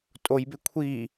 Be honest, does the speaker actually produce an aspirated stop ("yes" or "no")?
yes